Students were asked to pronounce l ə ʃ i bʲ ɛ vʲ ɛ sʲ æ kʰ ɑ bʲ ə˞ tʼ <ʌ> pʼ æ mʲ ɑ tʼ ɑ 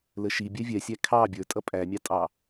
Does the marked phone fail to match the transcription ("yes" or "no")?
no